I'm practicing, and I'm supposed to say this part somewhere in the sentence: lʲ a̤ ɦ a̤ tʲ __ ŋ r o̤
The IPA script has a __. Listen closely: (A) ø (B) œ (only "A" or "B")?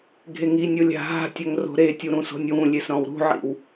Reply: B